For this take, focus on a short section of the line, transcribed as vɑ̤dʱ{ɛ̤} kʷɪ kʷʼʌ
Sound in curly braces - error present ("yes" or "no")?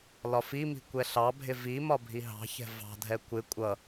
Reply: yes